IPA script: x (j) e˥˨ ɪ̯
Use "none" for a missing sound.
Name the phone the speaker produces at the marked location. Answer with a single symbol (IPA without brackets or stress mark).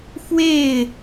w